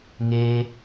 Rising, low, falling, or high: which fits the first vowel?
high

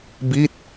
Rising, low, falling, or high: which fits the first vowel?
falling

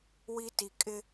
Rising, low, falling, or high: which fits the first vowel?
high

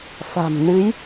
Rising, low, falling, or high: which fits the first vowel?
low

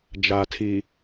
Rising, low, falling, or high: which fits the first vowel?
low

